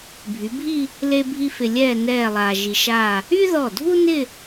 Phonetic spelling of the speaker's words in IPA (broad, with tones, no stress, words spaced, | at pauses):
bʱy˩˧bʱi˥˧ | le˥bʱi˥ fɪ˧lʲɛː˥˧ nɛː˥˧lˠaː˧ ʒi˧ʃaː˥˧ | y˥ðɔ˧˩dʱu˥nɪ˥˧